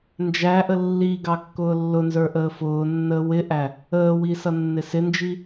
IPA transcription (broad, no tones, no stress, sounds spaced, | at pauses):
n d͡ʒ æ ʔ ə lː i ɡ ɑ kː ʊː lː ʊ n z ə˞ ʔ əː f ʊː nː əː w ɪ ʔ æ | əː w i s ʌ nː ɪ s ɪ n d͡ʒ i